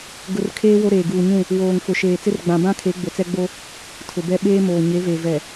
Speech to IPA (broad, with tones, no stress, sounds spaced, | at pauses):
ɡ ʊ˨ r kʰ eː˦ w o˦ ɾ eː˨ ɡ uː˨ ɲ ũ˦˨ | w oː˨ ŋ f ʊ˨ ʃ eː˨ t͡s ɪ˦ r ɡ͡b ã˨ b ã˦ kʰ e˨˦ ɡ͡b o˨ t͡s ɛ˦ ɡ͡b o˦ | tʰ ʊ˨ b ɛ˦ ɓ eː˦ m oː˨ ɲ e˨˦ v e˨ v ɛ˨